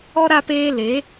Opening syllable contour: high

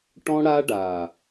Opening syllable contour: high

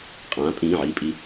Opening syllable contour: rising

